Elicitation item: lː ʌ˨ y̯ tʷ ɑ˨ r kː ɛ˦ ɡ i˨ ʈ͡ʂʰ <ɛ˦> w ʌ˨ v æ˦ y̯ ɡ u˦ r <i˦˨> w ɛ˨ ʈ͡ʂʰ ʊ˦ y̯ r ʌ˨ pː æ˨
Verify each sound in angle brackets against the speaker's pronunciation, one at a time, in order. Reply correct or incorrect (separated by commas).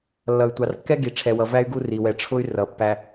incorrect, incorrect